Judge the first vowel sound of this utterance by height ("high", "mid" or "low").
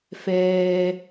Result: mid